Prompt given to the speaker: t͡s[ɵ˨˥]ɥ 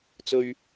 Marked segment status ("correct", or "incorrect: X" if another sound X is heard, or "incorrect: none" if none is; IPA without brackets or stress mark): incorrect: ɵ˨